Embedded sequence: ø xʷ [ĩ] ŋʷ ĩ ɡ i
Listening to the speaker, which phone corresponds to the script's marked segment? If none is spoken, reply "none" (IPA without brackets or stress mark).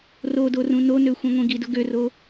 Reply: ĩ